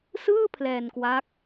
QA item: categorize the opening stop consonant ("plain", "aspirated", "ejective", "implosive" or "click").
aspirated